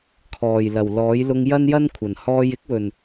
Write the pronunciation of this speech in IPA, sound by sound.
kʰɔː˨˩jlɐ˨˩wlɔː˨˥j lʊ˧ŋjɐ˥njɐ˥n kʷʰɐ˨˩nhɔː˥j ɪ˥k̚wɵ˨˩n

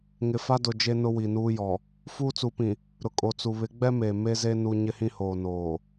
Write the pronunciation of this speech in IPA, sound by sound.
ŋɪ˨fa˦dʊ˨ d͡ʒe˦nʊ˦wi˨ nuː˦jɔ˨ | fuː˦t͡su˨˦pĩ˨ | ɾʊ˨kʼo˨t͡su˨ βɪ˨˦ɡ͡bɛ˦ me˨ me˦ze˦ nu˦ ɲɪ˦hĩ˦hoː˨ noː˨

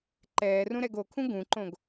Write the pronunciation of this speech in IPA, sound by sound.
ǃɛːrũ ɾɛɡokʰũ ɡũǃõɡ

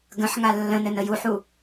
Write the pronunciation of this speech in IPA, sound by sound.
ɡə̃ħŋa lːə̃nɘn əjuħu

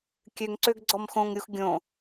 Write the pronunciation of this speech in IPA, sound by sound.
kʲøŋǀøɡ ɡ͡ǀɔmxõŋɾʲux ɡʲõ

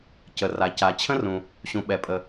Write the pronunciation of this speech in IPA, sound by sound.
cə˩ra˩ ca˩t͡ɕʰə̃˥rũ˩ | ɕũ˩ɓɛ˩pʼə˩

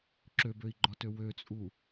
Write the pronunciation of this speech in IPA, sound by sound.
ǁøbøi̯ɡ͡ǃɒtø wøt͡sʼu

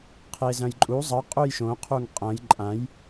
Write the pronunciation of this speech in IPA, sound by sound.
qʰezɐ̃jǃʼu zˤɐ qʼujʃõqʰuŋ qʼɐ̃j ǃʼãj

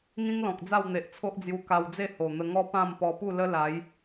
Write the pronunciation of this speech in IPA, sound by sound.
ŋĩ˦ŋlɔ̃˨k̚ d͡za˥˧wn̪e˨ʔt͡sʰo˦ʔd͡zju˧ ka˧wd͡ze˥˧ ho˨˩n̪ə˧ŋɔ˦ pã˥˧m pɔ˧pu˥˧ lə˦la˨˦j

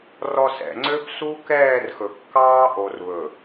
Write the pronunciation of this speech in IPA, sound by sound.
rɔ˨ sɛ̰˨ŋ͡ǀø˦b su˦kɛː˦˨rxɵ˨kːɑː˦ ʔo˨rβɵ˨

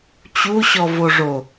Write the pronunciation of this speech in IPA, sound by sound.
t͡ɕuɕɔvoʐo

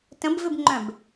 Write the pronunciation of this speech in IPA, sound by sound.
tə̃bvɪbŋ͡ǃœ̃b

